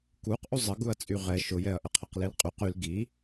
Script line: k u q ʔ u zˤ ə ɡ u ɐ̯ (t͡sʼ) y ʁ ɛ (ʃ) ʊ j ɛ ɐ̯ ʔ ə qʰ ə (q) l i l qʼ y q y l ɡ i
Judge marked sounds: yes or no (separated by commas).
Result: yes, yes, yes